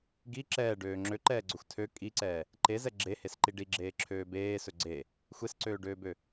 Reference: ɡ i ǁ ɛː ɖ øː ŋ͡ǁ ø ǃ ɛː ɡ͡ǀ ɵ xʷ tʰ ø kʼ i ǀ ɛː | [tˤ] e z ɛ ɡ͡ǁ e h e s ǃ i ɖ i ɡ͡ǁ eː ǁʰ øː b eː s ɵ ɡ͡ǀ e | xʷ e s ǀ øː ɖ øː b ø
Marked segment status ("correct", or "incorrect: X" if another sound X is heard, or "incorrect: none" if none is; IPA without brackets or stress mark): incorrect: ǃ